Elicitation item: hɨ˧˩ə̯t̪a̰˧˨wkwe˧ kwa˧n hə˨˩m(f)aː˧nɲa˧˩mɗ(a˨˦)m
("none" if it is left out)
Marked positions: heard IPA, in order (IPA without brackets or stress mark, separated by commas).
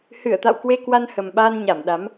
ɓ, a˨˦